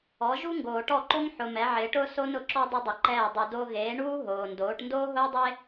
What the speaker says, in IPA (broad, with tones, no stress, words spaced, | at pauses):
ɔ˩˥ʒu˥ŋɡoː˨ ʈɔ˥˩ǃo˥ŋ ħʊ˨ mɛ˩˥ʕɪː˩˥ʈʊː˥ so˥nʊ˩˥ǁɔ˥ dˤʊ˥dˤɪ˩˥ǃɛː˥˩ dˤu˨ do˥ ɣeː˩˥ɳuː˥ ɦoː˨ndoː˩˥ʈ ndoː˥ɦʊː˥dˤe˥